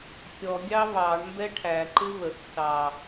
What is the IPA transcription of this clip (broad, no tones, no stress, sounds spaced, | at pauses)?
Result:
kʲ ɔ ɡʲ ɑ β ɑ ɳ m b ɛ ʈʰ æ ǃ ɪ β ə θ s ɑ